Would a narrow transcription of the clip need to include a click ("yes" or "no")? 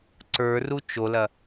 yes